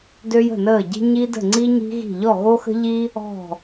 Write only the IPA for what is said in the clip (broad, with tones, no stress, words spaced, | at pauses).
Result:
dø˥jə̤˥˧nəː˥˧ɟi̤˥ ɲi˥ də̤˥˧ŋ͡ǀi˥ɲi̤˥ɣi̤˥˧ ʎɔ˥˧ɣo˥xə̤˥ ʎi˥ | ɔ̤˥˧